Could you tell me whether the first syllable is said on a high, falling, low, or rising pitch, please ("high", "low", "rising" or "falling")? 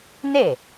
falling